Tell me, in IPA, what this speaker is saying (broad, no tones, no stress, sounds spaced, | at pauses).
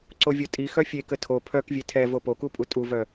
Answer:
ǀ o vʲ o tʼ i x œ fʲ e k ə tʰ o pʰ œ k vʲ e tʰ ɛ v o p o k u pʼ u tʼ u v œ